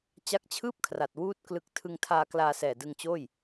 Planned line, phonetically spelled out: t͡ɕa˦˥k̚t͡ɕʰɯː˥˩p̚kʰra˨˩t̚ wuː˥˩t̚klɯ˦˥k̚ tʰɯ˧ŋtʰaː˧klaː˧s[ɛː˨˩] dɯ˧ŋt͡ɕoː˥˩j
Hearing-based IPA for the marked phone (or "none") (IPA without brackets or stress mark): ɛː˨˩